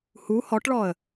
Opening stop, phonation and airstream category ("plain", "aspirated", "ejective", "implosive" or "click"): plain